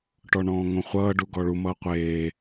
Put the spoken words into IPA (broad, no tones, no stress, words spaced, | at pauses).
ʈɔɳɔ̃ːŋõχʷʌː ɖuɡɔɭu mʌːqʷeː